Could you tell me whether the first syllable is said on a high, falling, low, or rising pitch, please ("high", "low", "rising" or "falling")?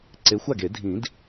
rising